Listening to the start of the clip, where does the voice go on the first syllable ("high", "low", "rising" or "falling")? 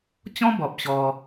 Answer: high